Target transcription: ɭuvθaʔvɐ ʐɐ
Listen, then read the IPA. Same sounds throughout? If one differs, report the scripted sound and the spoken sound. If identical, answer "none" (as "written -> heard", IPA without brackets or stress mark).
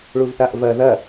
ʐ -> ð